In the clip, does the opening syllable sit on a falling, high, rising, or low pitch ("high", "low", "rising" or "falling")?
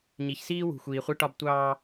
low